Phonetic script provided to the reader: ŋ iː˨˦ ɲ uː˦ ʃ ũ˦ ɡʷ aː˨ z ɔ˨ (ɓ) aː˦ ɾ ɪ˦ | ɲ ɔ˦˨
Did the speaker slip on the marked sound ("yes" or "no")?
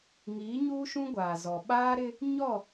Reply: no